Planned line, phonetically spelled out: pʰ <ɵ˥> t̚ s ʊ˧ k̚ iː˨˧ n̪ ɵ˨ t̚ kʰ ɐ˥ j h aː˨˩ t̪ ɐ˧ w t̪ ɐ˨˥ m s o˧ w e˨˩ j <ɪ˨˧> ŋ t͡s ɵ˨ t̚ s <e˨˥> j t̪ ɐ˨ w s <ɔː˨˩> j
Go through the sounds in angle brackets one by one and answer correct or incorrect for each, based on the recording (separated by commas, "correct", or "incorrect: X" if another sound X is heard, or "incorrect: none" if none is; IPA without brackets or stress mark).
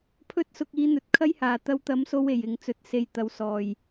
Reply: correct, correct, incorrect: e˨˧, correct